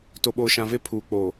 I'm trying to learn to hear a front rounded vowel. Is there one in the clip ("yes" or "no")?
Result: no